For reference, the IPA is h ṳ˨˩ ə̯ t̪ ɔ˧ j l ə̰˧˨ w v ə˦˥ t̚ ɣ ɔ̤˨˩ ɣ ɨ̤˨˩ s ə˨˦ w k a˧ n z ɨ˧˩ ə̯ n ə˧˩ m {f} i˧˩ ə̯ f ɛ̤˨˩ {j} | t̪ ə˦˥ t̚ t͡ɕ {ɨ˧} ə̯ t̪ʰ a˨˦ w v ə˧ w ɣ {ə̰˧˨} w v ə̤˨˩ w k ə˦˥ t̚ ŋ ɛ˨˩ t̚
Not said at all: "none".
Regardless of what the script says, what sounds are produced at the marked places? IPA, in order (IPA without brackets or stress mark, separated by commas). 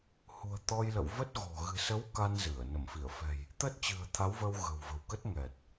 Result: f, j, ɨ̤˨˩, ə̤˨˩